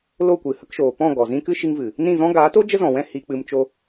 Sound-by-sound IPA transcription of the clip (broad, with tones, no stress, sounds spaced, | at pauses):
l o˦˨ kʷ ɨ˨ h ə˧ k ʃ oː˨ p ɔ̃˦˨ ɡ ɔ˨ z ĩ˦ k ɨ˦ ʃ i˧ ŋ v ɨ˨ | n ĩ˦˨ z ɔ̃˦ ɡ aː˨˦ t o˦ d͡ʒ ə˦ z ɔ̃˨ w ɛ̃˦˨ h i˧ k͡p ɨ˧ m t͡ʃ o˧